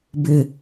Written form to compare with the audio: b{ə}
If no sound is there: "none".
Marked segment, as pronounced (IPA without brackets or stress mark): ɪ